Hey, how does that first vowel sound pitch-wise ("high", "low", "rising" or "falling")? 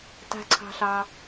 low